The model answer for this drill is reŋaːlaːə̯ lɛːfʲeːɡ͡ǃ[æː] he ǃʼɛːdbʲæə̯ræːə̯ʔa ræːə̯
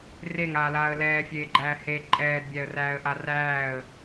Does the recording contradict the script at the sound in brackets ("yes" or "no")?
no